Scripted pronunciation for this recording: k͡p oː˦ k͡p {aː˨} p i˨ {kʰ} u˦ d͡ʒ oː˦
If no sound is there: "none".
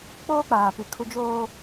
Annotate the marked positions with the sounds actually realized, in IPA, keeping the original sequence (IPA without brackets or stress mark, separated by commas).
aː˨, kʰ